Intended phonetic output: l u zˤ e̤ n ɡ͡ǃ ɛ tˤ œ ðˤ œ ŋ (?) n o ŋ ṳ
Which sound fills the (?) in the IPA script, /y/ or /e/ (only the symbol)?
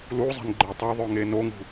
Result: e